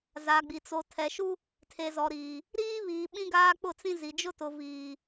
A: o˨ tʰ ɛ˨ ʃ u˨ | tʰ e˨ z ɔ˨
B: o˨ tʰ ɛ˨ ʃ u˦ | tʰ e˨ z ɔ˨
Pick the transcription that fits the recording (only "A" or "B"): B